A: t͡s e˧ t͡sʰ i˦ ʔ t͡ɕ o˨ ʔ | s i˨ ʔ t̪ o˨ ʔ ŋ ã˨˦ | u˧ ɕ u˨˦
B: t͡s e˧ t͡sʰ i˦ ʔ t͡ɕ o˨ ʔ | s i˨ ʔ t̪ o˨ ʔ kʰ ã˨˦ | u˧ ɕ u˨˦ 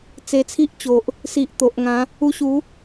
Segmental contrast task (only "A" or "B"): A